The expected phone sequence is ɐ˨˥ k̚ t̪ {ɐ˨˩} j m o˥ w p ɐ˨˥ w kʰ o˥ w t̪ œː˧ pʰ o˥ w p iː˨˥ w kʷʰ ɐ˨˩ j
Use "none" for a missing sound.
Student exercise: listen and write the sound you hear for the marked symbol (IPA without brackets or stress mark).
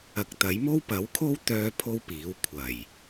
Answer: ɐ˨˥